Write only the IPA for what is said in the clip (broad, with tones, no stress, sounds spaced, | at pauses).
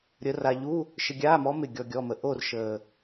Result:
ɾʲ ə˧˥ r a˧ ʎ u˧˥˧ | ʃ ɪ˧ ɡʲ aː˧˥˧ m ɔ˧˥ m ɪ˥˨ ɡʲ ɔ˧ ɡʲ ɔ˧˥˧ m ə˧ ʔ o˥˨ r ʃ əː˨˩